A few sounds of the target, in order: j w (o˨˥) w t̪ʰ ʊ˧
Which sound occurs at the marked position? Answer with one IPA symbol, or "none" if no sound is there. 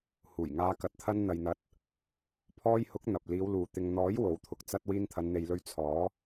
o˨˥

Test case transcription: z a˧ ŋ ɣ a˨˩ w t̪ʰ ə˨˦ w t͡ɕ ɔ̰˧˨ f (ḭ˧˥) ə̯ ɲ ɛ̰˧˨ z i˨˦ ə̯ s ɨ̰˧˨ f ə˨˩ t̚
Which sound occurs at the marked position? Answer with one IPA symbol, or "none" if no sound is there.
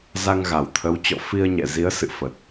i˧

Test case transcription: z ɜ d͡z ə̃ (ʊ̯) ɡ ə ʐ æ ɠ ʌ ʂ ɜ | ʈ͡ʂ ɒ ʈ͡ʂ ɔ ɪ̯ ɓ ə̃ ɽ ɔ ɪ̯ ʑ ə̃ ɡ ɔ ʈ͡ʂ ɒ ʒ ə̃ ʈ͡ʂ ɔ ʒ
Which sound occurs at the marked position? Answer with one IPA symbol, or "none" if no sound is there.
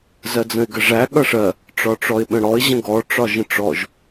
ɪ̯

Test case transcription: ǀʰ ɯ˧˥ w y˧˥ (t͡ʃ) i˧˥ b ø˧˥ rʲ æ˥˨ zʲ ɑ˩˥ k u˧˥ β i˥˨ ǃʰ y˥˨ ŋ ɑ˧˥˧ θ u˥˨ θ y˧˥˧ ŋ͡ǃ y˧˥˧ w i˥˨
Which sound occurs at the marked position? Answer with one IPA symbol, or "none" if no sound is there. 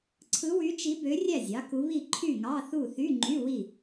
t͡ʃ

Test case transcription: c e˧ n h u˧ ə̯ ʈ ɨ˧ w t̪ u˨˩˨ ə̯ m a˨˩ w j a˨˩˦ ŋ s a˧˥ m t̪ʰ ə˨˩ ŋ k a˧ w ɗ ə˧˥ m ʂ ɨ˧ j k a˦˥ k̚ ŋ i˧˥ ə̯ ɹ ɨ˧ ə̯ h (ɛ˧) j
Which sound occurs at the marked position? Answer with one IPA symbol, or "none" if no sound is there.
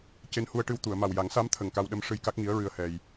ɛ˧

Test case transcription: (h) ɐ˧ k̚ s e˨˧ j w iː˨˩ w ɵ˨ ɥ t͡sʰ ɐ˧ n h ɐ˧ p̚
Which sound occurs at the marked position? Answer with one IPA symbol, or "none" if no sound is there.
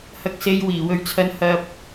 h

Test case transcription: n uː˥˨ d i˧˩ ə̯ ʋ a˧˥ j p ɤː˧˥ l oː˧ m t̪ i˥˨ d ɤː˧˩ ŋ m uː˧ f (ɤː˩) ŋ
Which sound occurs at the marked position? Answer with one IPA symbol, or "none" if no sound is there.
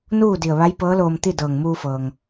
ɤː˩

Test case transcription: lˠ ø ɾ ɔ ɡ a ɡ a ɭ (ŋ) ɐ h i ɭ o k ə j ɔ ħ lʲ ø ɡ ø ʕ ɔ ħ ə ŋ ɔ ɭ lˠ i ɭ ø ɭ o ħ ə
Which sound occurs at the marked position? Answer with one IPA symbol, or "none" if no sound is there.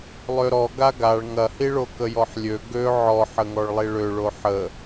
ŋ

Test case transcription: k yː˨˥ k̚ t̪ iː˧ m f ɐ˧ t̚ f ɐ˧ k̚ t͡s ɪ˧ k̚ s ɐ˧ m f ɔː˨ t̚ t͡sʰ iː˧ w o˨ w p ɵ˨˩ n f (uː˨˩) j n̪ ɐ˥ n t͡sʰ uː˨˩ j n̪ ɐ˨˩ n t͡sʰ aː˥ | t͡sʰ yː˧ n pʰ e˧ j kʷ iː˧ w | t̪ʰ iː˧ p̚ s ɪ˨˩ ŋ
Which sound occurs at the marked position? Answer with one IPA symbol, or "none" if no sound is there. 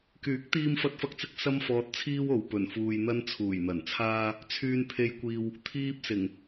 uː˧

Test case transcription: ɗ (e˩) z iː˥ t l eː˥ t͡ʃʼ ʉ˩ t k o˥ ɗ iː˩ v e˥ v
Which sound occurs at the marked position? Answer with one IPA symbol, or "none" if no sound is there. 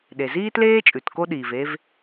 e˩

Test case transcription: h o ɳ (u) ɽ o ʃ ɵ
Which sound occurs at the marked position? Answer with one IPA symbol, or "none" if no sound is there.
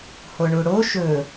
u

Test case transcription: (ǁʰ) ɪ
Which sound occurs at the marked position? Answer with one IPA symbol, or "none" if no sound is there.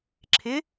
ǁʰ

